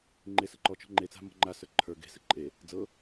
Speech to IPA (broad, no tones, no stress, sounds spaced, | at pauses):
ŋ͡ǃ e s ɤ ǃ ɔ t͡ʃ ɔ̤ ŋ͡ǃ e t͡s a̤ m ɔ̤ ŋ͡ǃ a s ə˞ ǃʰ ə˞ ɡ e̤ s ɘ ǃʼ e | d͡z ɤ